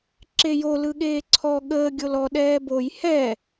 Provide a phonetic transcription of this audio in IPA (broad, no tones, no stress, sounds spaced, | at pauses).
ǁ e j o l ɯ ɠ eː ǀʰ ɔ ɠ əː ɡʲ o l ɔ ɗ ɛː b o j h ɛ